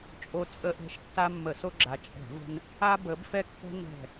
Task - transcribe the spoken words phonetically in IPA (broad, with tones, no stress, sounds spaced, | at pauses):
t͡ʃʼ o˦ t͡sʼ ə˦ ʔ ɛ̤˦ ʃ tː a˦ mː ə˧˩˧ s o˦ ɡ͡ǁ a˨˦ t͡ʃʼ ɛ̤˧˩˧ v ə̤˦ n | a˦ b ə˨˦ b f ɛ˦ kː ɛ̤˦ n ɛ̤˧˩